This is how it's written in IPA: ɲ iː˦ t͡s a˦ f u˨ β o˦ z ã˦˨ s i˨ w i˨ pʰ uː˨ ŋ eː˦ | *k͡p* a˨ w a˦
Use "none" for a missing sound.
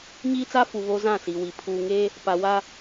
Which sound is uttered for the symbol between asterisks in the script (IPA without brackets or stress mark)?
p